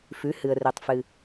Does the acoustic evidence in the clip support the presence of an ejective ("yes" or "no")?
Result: no